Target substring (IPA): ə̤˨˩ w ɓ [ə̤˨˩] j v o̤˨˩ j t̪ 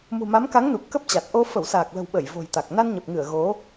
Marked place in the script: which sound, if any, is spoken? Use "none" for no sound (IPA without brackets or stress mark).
ə˧˩